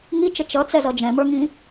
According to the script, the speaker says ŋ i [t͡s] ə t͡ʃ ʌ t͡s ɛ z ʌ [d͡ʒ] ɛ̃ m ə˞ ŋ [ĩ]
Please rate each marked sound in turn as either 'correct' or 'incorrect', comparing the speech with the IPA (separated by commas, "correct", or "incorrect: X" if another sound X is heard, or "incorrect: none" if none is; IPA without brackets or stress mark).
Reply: incorrect: t͡ʃ, correct, correct